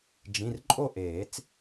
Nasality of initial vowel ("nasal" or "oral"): nasal